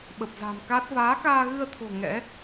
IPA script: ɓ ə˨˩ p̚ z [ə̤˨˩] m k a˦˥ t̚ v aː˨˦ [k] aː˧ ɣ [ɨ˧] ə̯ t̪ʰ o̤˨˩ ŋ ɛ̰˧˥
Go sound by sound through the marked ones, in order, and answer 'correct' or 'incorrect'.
incorrect: a̤˨˩, correct, correct

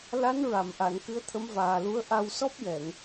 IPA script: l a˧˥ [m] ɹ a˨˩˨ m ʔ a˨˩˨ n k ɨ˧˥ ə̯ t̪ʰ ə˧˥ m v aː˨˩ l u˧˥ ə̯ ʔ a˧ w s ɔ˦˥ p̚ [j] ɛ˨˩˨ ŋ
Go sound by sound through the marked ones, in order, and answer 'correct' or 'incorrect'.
incorrect: n, correct

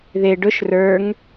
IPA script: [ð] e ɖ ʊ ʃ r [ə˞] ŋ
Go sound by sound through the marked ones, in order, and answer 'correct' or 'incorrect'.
correct, correct

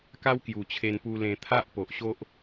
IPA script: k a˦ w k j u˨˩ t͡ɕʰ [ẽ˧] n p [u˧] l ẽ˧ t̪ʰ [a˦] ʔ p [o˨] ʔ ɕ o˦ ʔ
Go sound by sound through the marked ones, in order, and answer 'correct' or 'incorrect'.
incorrect: e˧, correct, correct, correct

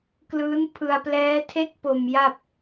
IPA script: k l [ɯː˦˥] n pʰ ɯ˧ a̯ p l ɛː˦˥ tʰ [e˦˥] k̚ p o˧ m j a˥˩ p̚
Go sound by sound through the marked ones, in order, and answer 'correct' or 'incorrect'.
correct, correct

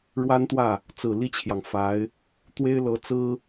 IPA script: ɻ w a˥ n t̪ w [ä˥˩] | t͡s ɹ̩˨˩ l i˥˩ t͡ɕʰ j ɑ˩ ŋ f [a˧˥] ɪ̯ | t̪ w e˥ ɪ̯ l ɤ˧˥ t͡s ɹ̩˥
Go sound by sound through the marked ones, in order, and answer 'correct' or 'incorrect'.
correct, correct

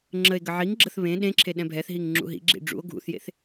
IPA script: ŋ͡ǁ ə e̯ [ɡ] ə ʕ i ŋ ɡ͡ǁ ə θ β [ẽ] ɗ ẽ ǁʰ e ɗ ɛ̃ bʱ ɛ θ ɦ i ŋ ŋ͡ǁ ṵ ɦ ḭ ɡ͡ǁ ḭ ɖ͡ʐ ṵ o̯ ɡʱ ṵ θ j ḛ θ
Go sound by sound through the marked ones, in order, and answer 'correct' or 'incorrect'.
correct, correct

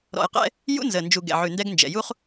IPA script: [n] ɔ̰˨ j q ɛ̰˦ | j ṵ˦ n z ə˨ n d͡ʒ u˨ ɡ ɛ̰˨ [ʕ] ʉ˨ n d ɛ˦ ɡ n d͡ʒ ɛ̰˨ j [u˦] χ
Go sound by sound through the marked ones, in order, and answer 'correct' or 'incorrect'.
incorrect: ɾ, correct, correct

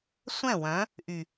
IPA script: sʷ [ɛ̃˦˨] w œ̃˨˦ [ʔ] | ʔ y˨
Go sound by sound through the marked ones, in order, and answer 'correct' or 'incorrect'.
correct, incorrect: none

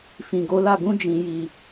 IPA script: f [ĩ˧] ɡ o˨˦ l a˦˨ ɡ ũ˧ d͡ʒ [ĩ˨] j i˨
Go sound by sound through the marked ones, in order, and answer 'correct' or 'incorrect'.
incorrect: ĩ˨, correct

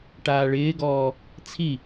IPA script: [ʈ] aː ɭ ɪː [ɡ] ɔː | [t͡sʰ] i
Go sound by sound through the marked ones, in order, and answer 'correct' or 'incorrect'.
correct, correct, correct

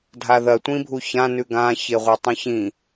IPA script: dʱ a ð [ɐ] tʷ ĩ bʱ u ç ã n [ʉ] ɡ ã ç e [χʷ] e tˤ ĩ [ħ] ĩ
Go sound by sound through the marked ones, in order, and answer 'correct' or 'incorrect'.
correct, correct, incorrect: ʁʷ, incorrect: ç

